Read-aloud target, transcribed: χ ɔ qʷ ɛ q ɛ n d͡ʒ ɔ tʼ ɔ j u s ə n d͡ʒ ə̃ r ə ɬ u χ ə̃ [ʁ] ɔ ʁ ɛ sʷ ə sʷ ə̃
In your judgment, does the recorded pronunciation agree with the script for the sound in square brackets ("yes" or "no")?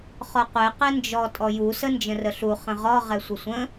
yes